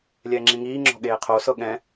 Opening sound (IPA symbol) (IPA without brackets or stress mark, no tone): lʲ